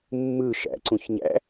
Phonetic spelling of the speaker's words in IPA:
mː ɯ ʃ æ̰ ǀ ũ ç ɲ æ̰

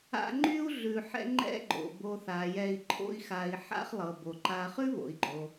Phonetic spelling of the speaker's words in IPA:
a̰˦ ŋ͡ǃ y˥ u̯ ɮ ʉ˨ ħ ɛ̰˦ ŋ͡ǃ ɛ̰˥ ɡ͡ǃ o̰˩ b o˨ θ a˩ j ɛ˨ i̯ ǃʰ o̰˦ i̯ x a˨ i̯ ħ a̰˦ χ lˠ ɤ˩ b o˩ ǃ a˨ χ ʉ˥ β o̰˩ i̯ ɡ͡ǃ o˩

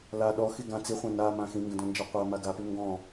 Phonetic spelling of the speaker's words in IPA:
l a ɗ ɔ x i ɡ ã t͡s i χʷ ã n a m ã x ĩ ŋ ɡ ə̃ d ɔ̃ n d͡ʒ a qʷ a m a ɡ a p ʉ ŋ ɡ ɔ̃

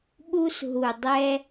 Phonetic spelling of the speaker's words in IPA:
ɓ u˧ s ɦ u˨ dˤ ɛ˧

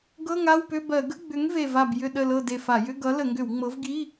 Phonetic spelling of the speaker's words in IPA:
ɡ ɤ˧˥˧ ŋ a˧˥˧ w p ʏ˧˥˧ b ɜ˧˩˧ ɡ ə˧˥˧ ɡ͡b ʏ˨˥ ŋ v e˧˩ v a˧˩ b j ʏ˧˩ ɗ ə˧˩ l ɤ˧˩ d e˧˩ f a˧˩˧ j ʏ˧˥˧ ɡ ʌ˨˥ l ə˧˩˧ ŋ ɡ ʏ˧˩˧ w ŋ͡m ɤ˨˥ v ɡ i˧˥˧

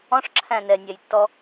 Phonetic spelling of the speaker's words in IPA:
ɔ̃ ʂ ǁʰ æ̃ n ɛ nʲ æ j tː ɔ

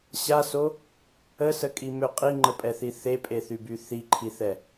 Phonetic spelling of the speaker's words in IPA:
ɕ a s o | ə s ə kʼ i m ø qʼ i ŋ͡ǃ ə pʼ ɛ θ i θ e pʼ e θ y b y θ i ǃʰ i θ ɛ

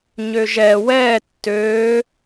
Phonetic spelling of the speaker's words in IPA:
ɲ ø ʒ ɛ w ɛː tː øː

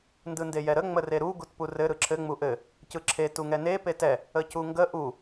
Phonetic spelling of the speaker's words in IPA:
n d ɯ n d e j ɛ ɾ ə ŋ͡m ə r e ɾ u ɡ u t p u r ɘ ɾ ɯ ǁʰ ɘ ŋ͡m u ʔ ɘ | c ɯ ǁʰ e t u ŋ ɛ n e p e t ɛ | ə c u ŋ ɡ ə ʔ u

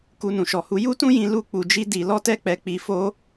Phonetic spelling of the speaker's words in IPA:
k u˦ n ũ˧ ʃ ɔ˧ h u˦ j u˦ t ũ˦ j ĩ˧ l u˦ k͡p u˧ d͡ʒ i˦ d i˧ l ɔ˦ t ɛ˦ k͡p ɛ˧ k͡p i˧ f o˦

